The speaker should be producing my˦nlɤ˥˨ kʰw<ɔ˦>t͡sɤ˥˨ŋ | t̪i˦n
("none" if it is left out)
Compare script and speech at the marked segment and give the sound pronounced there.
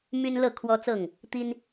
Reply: ɔ˦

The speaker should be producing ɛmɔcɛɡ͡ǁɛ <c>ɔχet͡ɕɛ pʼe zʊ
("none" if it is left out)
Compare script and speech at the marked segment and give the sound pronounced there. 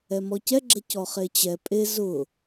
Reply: c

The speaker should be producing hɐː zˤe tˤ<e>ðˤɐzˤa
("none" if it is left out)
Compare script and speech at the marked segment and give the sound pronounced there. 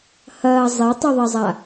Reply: i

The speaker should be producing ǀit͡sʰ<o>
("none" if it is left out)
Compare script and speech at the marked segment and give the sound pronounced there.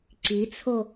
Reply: o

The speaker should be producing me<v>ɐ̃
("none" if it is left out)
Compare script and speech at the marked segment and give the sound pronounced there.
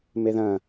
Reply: ð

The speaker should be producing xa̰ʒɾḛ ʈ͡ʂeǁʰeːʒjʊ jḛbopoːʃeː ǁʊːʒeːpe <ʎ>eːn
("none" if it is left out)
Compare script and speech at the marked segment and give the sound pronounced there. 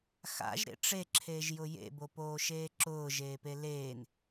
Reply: l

